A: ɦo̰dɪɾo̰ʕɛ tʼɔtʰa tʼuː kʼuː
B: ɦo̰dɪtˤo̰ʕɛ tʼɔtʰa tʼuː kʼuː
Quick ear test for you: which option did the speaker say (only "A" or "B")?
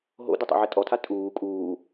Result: B